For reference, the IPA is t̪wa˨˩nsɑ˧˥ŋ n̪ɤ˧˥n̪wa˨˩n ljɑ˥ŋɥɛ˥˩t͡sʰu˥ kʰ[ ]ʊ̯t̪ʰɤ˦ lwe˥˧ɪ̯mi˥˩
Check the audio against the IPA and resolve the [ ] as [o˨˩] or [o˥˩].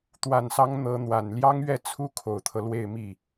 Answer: o˨˩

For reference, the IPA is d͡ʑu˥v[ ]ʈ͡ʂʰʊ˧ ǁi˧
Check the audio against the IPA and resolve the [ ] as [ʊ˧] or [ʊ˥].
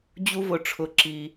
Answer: ʊ˧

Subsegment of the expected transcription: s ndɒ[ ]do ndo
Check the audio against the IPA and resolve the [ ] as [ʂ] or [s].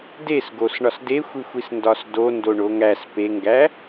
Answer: s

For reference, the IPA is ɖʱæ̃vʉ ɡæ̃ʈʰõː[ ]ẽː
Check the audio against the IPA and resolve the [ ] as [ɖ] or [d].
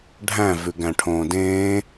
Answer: d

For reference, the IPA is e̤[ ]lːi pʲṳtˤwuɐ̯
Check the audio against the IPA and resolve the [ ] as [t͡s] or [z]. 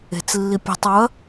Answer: t͡s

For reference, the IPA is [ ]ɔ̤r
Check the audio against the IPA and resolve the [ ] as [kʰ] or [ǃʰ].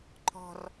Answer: ǃʰ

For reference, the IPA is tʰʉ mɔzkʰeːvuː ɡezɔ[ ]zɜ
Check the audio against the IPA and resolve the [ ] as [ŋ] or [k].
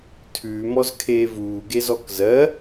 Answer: k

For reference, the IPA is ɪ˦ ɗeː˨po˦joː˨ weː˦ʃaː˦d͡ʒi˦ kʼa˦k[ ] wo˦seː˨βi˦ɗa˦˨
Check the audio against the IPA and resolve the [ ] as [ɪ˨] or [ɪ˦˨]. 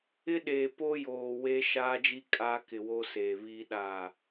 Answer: ɪ˨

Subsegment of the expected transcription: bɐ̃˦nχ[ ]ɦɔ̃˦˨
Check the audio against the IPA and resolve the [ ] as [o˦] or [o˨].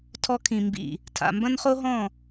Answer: o˦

